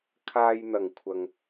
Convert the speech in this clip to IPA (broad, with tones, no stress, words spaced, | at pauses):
kʰaː˧jn̪ɐ˨˩ŋkʷʰɐ˨ŋ